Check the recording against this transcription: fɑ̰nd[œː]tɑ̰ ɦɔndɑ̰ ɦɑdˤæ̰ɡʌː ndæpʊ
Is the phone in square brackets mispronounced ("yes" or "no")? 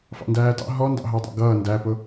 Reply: yes